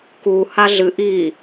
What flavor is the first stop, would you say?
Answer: plain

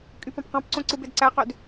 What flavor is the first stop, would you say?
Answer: ejective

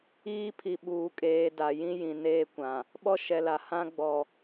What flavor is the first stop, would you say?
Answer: aspirated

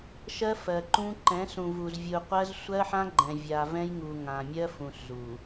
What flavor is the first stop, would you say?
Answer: click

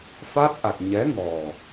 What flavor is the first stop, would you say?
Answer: plain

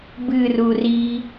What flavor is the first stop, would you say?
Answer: plain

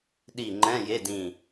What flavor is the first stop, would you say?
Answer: implosive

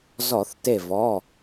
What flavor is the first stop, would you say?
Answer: plain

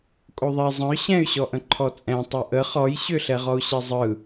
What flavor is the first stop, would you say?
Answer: ejective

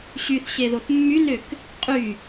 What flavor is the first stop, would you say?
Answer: plain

